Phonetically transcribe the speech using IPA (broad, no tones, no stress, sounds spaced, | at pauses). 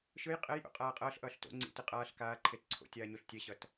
ʃ ɯ j qʼ ɛ j ʔ o̰ qʼ aː qʼ ʌː ɬ ʔ ʌː ɬ t o̰ ŋ͡ǀ ḭ t ɯ qʼ aː ɬ k aː ǃʰ e t ǀʰ o̰ tʲ aː ɲ o ɬ tʲ ɛ ɕ ʌ t